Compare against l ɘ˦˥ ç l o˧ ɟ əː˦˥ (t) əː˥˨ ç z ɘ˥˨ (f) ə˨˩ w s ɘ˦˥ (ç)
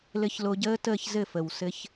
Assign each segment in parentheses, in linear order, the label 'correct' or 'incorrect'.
correct, correct, correct

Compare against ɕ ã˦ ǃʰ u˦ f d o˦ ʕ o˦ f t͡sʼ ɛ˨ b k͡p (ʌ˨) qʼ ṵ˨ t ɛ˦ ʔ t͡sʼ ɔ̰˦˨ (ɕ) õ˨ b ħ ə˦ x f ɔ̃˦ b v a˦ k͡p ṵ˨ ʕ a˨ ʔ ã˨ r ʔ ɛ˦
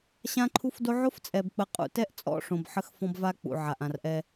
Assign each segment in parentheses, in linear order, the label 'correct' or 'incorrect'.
incorrect: ə˨, incorrect: ʂ

